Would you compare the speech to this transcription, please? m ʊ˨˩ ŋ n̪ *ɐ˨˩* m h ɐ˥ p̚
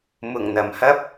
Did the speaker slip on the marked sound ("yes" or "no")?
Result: no